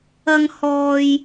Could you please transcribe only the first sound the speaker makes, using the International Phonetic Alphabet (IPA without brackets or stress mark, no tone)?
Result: ɐ